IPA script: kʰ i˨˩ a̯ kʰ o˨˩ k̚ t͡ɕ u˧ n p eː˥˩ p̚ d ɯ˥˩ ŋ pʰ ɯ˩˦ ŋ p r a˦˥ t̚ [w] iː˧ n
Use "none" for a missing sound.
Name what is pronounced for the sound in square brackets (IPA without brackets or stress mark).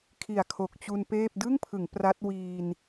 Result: w